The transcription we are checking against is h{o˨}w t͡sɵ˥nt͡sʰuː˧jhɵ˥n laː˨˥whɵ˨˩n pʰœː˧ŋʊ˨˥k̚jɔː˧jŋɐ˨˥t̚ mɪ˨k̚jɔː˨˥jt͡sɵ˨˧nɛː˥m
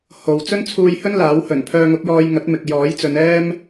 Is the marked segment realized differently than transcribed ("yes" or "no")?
no